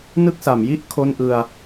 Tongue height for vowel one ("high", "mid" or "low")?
high